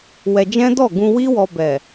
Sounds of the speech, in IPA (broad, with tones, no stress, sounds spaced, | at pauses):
w ɛ˧ d͡ʒ ɛ̃˦ d ɔ˦˨ ɡ ũ˧ w i˦ w ɔ˧ b ɛ˨